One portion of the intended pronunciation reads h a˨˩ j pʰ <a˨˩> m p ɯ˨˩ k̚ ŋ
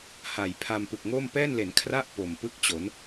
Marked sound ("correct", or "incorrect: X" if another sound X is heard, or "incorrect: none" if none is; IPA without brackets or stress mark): incorrect: a˧